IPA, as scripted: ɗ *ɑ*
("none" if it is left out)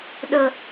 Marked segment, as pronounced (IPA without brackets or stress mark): ə